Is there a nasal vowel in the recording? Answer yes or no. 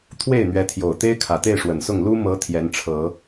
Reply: no